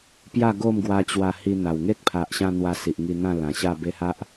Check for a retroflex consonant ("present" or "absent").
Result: absent